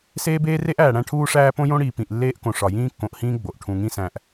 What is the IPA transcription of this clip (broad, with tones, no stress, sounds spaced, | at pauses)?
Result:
s eː˦ b eː˦ r e˦ ʔ æː˨ ɽ æ̃˦ ʈʰ uː˦ ʂ æː˦ p õ˦ j õ˦ ɽ iː˨ p ĩ˨ ʔ lː eː˦ ʔ k õ˨ ʂ ɒ˨ j ĩː˦ kː õ˨ ʔ h ĩː˦ ɡ͡b o˨ ʔ ʈʰ ũ˨ ŋ ĩ˦ s æ̃˨ ʔ